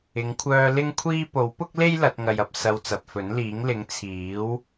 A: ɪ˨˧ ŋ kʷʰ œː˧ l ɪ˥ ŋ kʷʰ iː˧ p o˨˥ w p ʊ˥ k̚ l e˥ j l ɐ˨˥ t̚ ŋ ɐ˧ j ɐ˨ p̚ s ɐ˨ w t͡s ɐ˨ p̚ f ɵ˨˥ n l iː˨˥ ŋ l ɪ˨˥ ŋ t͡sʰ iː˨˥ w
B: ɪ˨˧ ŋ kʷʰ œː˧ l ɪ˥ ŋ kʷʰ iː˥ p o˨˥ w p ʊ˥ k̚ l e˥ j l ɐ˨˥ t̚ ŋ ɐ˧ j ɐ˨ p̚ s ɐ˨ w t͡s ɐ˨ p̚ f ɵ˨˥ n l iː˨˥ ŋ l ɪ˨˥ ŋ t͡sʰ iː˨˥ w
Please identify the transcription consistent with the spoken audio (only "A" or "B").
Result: B